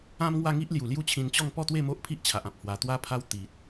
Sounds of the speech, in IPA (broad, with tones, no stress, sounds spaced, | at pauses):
ã˦ m ŋ w a˥˧ ŋ i˦ ʔ l j u˨˩ l j u˦ t͡ɕʰ ĩ˧ n t͡ɕ ɔ˥˧ ŋ p ɔ˥˧ t̪ w e˥˧ m o˦ ʔ pʰ i˦ ʔ t͡ɕʰ a˨ ʔ ã˨ p̚ h w a˧ t̪ w a˧ pʰ a˧ w t̪ i˨ t̚